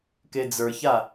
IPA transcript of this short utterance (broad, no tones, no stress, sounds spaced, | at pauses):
k e d͡z ə˞ ç a